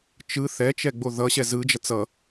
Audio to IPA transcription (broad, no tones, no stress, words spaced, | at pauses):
t͡ʃɯ θɛt͡ʃɛɡ͡bo ðʌɕɛ zɯd͡ʒʌ t͡sʌ